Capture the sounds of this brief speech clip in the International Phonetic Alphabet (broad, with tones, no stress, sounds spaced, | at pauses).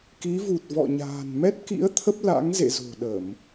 k i˨˦ v u˨˩ t̚ v ɔ̰˧˨ ɲ a̤ː˨˩ n m ɛ˦˥ t̚ k ḭ˧˥ ə̯ t̪ʰ ə˦˥ p̚ l a̰˧˥ ŋ z ḛ˧˨ z o̤˨˩ ɗ ə˧˩˨ m